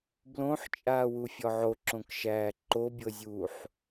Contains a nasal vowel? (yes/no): yes